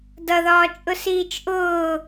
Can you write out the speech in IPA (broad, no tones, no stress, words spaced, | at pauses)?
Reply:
dʌðɒː t͡ʃʼʊsiːt͡ʃʔʊː